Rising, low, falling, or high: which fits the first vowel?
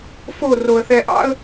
falling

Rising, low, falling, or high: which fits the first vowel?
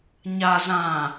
low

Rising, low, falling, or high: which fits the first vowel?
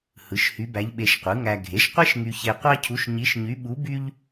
rising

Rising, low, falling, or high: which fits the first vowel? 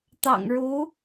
low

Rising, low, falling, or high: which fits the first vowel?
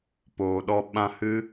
low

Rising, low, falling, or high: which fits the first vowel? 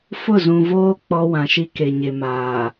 falling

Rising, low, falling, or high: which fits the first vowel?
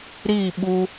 falling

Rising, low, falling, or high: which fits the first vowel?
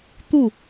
falling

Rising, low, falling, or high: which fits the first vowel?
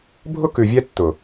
high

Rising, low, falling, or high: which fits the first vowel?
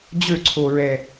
falling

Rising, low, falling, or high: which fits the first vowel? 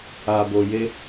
low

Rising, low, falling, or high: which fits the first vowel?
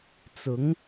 rising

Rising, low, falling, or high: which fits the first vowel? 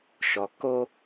low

